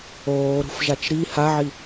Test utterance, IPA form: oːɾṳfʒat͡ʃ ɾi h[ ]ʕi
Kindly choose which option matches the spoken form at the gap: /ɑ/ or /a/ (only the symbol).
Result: a